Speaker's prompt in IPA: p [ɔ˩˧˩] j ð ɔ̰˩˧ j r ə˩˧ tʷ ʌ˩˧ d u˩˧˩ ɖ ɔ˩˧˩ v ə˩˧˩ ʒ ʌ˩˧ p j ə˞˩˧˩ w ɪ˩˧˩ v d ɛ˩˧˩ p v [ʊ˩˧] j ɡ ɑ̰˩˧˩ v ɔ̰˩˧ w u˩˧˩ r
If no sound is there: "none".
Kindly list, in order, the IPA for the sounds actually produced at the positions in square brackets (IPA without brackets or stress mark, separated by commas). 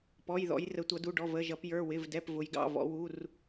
ɔ˩˧˩, ʊ˩˧